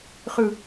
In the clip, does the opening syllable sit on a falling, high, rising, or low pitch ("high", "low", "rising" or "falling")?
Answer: low